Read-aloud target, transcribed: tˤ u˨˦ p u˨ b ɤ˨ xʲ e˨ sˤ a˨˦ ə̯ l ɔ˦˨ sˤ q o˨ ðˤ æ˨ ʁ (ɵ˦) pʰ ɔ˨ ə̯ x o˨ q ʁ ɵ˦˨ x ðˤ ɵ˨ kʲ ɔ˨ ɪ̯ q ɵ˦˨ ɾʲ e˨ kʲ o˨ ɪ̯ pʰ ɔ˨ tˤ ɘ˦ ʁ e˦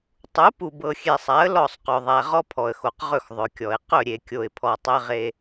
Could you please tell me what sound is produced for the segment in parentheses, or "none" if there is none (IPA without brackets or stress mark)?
ɔ˦